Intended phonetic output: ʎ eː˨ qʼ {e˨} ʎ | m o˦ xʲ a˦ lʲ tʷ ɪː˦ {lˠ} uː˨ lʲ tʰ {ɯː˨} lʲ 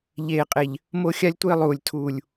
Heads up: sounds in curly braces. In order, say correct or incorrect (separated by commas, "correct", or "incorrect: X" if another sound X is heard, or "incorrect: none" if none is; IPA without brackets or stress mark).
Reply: correct, correct, incorrect: uː˨